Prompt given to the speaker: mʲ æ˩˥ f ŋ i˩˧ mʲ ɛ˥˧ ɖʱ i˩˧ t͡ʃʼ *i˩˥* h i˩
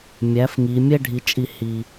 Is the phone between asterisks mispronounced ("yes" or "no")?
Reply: yes